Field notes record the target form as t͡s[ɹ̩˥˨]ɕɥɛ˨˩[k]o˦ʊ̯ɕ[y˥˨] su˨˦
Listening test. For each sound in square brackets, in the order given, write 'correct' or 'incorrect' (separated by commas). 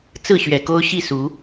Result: correct, correct, incorrect